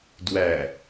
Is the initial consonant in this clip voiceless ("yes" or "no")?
no